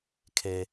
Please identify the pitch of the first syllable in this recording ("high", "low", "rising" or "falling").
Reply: high